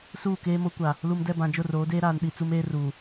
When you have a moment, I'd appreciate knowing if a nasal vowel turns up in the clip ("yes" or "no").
yes